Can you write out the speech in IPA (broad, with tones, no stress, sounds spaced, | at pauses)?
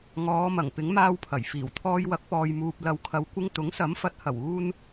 ŋ ɔː˨˧ m ɐ˨˩ ŋ p ɪ˨˥ ŋ m aː˧ w pʰ ɐ˨˩ j f iː˨˩ w t̪ʰ ɔː˧ j w ɐ˨˥ k̚ p ɔː˨ j m uː˨ p̚ l ɐ˨ w kʰ ɐ˨˥ w kʷ ɪ˧ ŋ t̪ ʊ˨˥ ŋ s ɐ˨˥ m f ɐ˨˥ t̚ h ɐ˨˩ w uː˧ n